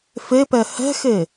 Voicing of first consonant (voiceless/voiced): voiceless